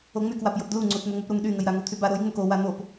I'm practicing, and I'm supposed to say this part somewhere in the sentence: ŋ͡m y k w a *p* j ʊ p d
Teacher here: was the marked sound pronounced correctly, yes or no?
yes